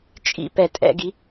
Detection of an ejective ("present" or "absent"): present